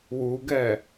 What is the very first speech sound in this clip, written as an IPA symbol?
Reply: w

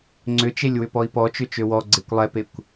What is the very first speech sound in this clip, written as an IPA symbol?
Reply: ŋ͡ǀ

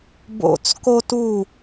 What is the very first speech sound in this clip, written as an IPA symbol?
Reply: b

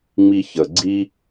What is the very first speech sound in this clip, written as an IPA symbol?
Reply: ŋ͡m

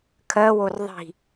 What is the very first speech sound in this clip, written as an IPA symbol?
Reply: kʰ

